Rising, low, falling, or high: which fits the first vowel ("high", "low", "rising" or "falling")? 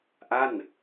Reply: falling